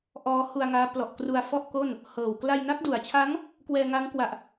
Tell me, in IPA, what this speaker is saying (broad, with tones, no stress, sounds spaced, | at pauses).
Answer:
ʔ ɔː˦˥ h u˧ a̯ ŋ aː˦˥ p l ɔ˨˩ ʔ k r u˧ a̯ f ɔ˥˩ ʔ k o˥˩ n | h ɤː˨˩ w k l a˧ j n a˦˥ k̚ d u˩˦ a̯ t͡ɕʰ a˦˥ ŋ | k w ɛː˧ ŋ a˦˥ ŋ k w a˨˩ ʔ